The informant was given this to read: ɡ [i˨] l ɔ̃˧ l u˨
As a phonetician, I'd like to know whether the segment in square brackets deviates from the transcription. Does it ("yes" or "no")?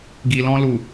no